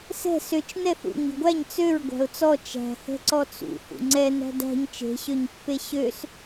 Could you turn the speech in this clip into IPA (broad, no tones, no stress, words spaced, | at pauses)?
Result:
sɛ̤ søt͡ʃ nɛθṵ ɲi̤ɡʷæɲ t͡søɹ ɡʷæ̤ʊ̯t͡sɔ t͡ʃæ̤hɛ̤ ǀɔt͡sṵ hṵŋ͡ǀɛ næ̤dæ̤ɲ t͡ʃe̤ɕøɲpːe ɕøs